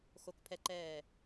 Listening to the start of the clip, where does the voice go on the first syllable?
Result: low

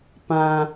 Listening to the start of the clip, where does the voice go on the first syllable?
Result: high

